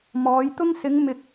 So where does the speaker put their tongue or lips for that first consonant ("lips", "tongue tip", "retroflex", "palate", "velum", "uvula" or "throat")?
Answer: lips